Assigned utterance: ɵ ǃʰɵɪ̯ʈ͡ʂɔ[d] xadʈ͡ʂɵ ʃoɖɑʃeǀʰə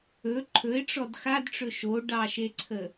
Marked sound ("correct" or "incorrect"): correct